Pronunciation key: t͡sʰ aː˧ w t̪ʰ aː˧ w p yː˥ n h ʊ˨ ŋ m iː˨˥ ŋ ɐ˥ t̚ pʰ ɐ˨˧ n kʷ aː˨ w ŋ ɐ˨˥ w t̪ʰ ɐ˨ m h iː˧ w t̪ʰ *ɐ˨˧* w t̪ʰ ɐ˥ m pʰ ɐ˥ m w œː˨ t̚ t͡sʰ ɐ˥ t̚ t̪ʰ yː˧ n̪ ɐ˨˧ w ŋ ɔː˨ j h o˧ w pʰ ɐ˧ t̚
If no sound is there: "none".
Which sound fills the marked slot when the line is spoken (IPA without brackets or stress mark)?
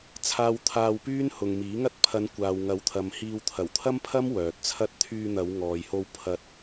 ɐ˨˩